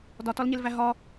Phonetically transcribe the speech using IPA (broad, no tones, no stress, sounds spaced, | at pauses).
d ɒ t ɒ l ɲ e l v æ ɦ ɒ